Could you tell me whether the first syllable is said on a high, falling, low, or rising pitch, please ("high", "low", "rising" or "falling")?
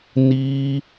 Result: high